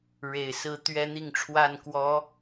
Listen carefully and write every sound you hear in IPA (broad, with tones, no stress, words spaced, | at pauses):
ɻe˨˩ɪ̯ sɹ̩˥˨ t̪ɥɛ˦n̪i˥˨ŋʈ͡ʂʰwa˥˨n kwɔ˨˦